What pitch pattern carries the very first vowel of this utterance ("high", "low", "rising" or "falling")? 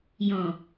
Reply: low